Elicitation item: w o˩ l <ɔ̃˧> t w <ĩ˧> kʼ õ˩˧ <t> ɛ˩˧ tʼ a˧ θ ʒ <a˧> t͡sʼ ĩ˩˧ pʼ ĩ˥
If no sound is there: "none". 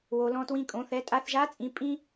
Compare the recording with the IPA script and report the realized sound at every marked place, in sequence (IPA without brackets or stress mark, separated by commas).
ɔ̃˧, ĩ˧, θ, a˧˥